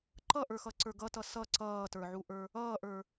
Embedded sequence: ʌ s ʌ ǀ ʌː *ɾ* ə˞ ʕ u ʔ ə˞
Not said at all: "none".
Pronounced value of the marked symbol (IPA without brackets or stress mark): t